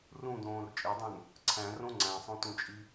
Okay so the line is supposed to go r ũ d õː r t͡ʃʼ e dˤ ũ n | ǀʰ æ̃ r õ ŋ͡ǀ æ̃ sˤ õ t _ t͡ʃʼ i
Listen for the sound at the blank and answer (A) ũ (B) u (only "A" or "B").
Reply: A